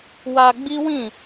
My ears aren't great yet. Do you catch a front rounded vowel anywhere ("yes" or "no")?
no